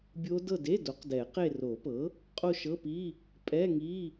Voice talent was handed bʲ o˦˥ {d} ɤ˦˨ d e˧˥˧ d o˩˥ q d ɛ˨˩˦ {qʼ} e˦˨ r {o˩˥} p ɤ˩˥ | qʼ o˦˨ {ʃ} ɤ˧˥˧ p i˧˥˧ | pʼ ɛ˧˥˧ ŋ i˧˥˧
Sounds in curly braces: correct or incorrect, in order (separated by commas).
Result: correct, incorrect, incorrect, correct